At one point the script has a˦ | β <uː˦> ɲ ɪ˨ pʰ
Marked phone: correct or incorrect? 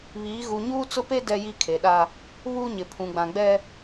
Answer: correct